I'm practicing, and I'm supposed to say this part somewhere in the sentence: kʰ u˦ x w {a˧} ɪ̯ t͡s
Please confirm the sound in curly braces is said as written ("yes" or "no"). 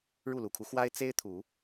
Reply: no